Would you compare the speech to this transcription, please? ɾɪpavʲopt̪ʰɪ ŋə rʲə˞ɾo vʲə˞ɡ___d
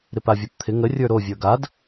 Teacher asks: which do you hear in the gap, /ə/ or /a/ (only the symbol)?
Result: a